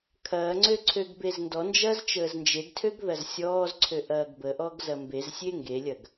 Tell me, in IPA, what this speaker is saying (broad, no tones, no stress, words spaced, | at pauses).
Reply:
kʰɐːŋ͡ǀø ǀʰøɡbezndɔnd͡ʒɐːz t͡ʃəːznd͡ʒeɡtʰøɡ ðɐzsʲɔːzǀʰø ʔɐːɡbəʔɔɡ zɐmbezsʲe ŋɡelʲɐɡ